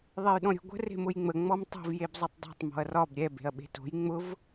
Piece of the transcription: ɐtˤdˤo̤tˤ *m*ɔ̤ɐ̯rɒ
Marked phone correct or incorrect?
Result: correct